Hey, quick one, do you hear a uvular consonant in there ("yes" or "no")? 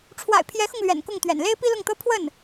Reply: no